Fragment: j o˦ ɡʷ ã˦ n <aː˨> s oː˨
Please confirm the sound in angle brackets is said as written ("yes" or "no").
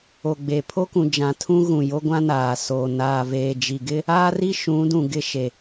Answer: yes